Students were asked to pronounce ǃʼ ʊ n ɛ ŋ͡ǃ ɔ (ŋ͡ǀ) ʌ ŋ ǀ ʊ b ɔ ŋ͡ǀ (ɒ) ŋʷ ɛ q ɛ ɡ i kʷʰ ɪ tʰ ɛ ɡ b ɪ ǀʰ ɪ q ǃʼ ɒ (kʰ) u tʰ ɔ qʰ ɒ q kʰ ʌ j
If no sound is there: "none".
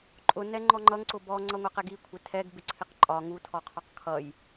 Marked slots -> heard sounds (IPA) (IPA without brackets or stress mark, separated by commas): ŋ͡ǃ, ʌ, ŋ